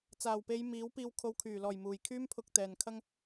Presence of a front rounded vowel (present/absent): present